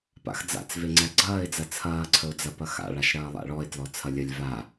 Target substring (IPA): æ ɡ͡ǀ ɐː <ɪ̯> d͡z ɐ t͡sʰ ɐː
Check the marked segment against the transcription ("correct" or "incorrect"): correct